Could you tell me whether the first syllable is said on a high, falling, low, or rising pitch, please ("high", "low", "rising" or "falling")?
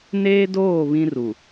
high